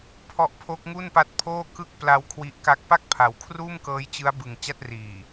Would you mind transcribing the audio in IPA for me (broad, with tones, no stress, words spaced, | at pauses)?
pʰɔ˦˥ʔpʰo˦˥k̚ŋu˥˩npa˦˥t̚ pʰoː˥˩ kɯ˥˩k̚pla˧w kʰwi˦˥ʔka˥˩k̚ pa˥˩k̚pʰa˩˦wkʰruː˥˩m kɤː˦˥jt͡ɕɯ˦˥a̯bɯ˨˩ŋ t͡ɕa˥˩t̚riː˨˩